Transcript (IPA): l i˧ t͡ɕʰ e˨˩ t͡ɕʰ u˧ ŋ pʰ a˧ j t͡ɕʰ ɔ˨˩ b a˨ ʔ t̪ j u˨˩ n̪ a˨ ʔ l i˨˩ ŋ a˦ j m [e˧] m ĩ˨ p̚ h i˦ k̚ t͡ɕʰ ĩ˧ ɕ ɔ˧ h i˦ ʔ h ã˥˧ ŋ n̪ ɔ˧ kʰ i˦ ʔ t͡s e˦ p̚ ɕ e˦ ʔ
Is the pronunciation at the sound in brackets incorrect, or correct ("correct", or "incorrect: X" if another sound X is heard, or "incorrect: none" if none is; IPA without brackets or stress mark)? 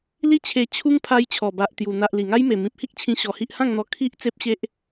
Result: incorrect: e˨˩